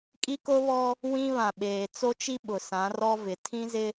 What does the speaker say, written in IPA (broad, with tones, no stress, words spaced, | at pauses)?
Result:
kʼi˦ko˦βɔ˦ | wĩ˦ βã˨ɓeː˨t͡so˦t͡ʃi˦ ɓʊ˨sã˨˦rɔ˦vɪ˨ tʰĩ˦zɪ˦